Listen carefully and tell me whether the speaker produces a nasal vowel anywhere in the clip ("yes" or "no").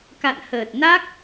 no